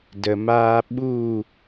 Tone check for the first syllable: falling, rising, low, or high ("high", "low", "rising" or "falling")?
low